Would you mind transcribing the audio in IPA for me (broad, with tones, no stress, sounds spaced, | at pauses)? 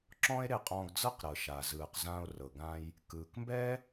ǁ ɔ̃˥ e̯ ɾ e˧ qʼ ɔ̃ː˧ ɡ d͡z ɤ˥˩ q ɾ ɤ˩ ʃ a˩ z ɯː˩ q z ã˧ o̯ r ɤ˩ ɡ ã˧ j | k ɯː˩ k m b ɛ˥